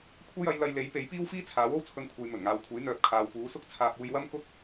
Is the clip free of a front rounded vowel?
no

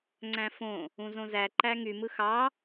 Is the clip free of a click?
no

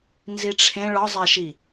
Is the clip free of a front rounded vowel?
yes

